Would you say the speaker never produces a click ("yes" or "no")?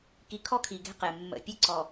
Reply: no